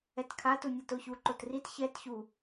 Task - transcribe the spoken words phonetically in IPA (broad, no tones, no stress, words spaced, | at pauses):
ɛtkʰa tunʲatoçu ǃotrit çɛt çu